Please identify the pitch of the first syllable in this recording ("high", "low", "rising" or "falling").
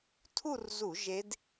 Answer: falling